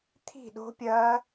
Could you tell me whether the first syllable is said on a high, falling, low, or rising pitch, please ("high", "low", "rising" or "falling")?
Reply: falling